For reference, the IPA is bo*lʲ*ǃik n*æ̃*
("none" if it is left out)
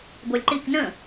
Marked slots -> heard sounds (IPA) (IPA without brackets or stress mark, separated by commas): lʲ, ə̃